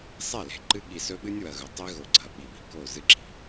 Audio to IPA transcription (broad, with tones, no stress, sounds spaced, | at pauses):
sˤ e˦˨ l e̤˦ ǃ ɨ˦ ɠ i˨ s ɵ˦ ɓ ɨ˦ nʲ w ɐ˨ ɣ ɵ˨ tˤ i˦ ɣ o˨ ɡ͡ǀ ɐ˨ ɓ i˨ ɓ i̤˨ k o˦˨ z ɨ˦ ǁ i̤˨